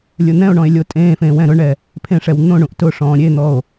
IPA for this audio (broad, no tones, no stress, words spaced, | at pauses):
lʲʊn̪ɛ̃o̯ɳɔ̃e̯ lʲotʼẽːfẽː wɛ̃ɾʊɳɛ | pʰẽʂɛw n̪õɳũʔ tʊʂɔ̃ː ɾʲen̪ɔo̯